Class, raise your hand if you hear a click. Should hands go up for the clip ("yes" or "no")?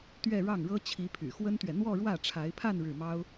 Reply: no